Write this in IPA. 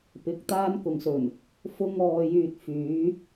p ɪ˨ k̚ t̪ aː˥ n k ʊ˨ ŋ s ɵ˨˩ n | f ʊ˥ ŋ ɔː˧ j yː˧ t̚ f yː˨˥

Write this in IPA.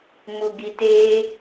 m u ɡ i t e

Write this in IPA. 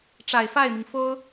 ʈ͡ʂ a˨˩ ɪ̯ f a˥˩ ɪ̯ m i˩ ŋ f o˥ ʊ̯

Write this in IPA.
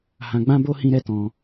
h ã˧ ɡ͡b ã˦ b o˦ h ĩ˦ ɾ ɛ˦ t ɔ̃˧

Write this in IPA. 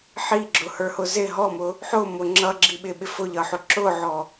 ħ i ɡ͡ǁ ʊ h ə˞ h ʊ z ɪ ɦ ɔ m ʊ | ħ ʊ m ʊ ŋ͡ǁ ʌ ɡ͡ǁ i ɓ ɪ ɓ ɪ f ʊ ʎ ʌ ħ ʊ ǁ ʊ ʕ ɔ

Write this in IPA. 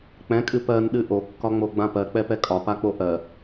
k͡p ɛ̃ kʼ ɨ p ɜ n ɗ ɨ ʔ o kː ɒ ŋ͡m o ɡ͡b ã p ɜ k͡p ɛ p ɛ kʼ ɒ p a k͡p o ʔ ɜ

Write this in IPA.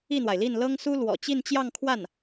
i˥˩ n̪ w a˩ ɪ̯ l i˥˩ n l ɤ˥ ŋ s u˥ l w ɔ̰˨˩ t͡ɕ i˥˧ n t͡ɕ j ɑ˥˧ ŋ kʰ w a˥˩ n

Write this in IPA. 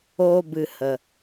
oː˦ b ɨ˧ h ə˧

